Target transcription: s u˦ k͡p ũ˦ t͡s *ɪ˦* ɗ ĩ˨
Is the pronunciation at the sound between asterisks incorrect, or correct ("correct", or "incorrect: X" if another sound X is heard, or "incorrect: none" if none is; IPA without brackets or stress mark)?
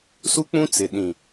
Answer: incorrect: ɪ˨